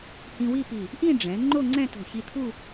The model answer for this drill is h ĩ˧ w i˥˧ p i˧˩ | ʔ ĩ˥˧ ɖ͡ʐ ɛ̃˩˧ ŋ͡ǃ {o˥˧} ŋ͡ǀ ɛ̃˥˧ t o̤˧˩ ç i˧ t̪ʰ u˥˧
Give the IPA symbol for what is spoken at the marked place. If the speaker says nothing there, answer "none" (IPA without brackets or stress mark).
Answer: o˥˧